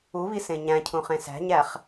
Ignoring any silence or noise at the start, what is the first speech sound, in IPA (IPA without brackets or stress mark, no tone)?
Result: u